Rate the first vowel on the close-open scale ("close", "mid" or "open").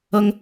mid